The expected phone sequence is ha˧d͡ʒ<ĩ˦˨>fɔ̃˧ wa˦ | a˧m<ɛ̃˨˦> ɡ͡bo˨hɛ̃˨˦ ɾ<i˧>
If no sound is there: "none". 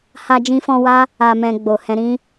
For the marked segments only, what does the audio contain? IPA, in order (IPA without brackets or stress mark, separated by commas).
ĩ˧, ɛ̃˧, ĩ˧